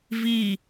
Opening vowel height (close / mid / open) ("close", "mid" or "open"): close